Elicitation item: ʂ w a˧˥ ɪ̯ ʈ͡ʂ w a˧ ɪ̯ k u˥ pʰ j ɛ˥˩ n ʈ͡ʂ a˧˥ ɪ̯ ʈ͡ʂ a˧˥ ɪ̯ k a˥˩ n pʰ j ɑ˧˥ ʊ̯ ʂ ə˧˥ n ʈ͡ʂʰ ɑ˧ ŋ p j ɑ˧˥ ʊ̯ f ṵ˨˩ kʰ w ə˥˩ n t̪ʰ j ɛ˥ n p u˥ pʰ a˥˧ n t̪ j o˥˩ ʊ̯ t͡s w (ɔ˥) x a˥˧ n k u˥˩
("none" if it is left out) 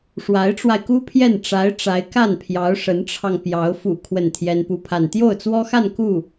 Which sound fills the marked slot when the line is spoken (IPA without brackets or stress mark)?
ɔ˥